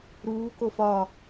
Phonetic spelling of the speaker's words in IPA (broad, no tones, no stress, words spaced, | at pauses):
ɾuː kofɒ